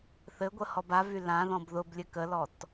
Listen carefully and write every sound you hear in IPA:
θ ɘ ɡʷ ə h ɔ b a v y l ã ð ɔ̃ b ð ʊ b lʲ ɘ k ə l ɔ t

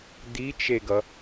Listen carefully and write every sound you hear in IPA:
d̪ i t͡ʃ e ɡ ʌ

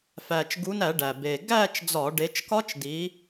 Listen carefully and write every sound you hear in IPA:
f æː˨˩ t͡ʃ ɡ u˨˦ n æ˧˩˧ ɖ æ˨˩ b e˨˩ ɡ æː˥˧ t͡ʃ d͡z ɒ˧˩˧ ɖ e˨˦ t͡ʃ k ɒ˦˥ t͡ʃ d iː˨˦

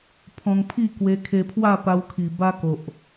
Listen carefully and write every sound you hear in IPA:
pʰ ɔ̃˧ ŋ pʰ i˥˧ k w e˧ kʰ e˧ pʰ w a˥˧ p a˧ w kʰ i˨˩ b a˦ k o˨ ʔ

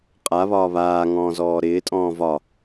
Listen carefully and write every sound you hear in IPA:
qʼ a β ɒː β aː ŋ ɔ̃ː z ɔː ɾ ɪː tʼ ɔ̃ː v ɒ

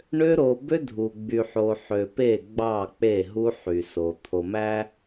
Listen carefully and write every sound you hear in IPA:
ɳ ø˦ ɾ o˨ b ø˦ dʱ u˨ ɡ͡b y˨ ħ o˨ ħ ø˨ p e˦˨ ɡ͡b ɑ˦˨ k͡p e˦˨ ɦ u˦ ħ y˨ s o˨ t̪ʰ o˨ m æ˦

